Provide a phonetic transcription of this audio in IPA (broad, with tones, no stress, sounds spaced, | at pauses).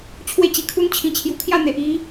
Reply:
t͡ɕʰ w e˥˧ t͡ɕ i˧ kʰ u˦ n t͡ɕʰ ĩ˧ t͡ɕʰ j u˧ kʰ j a˥˧ n̪ e˨ ʔ i˧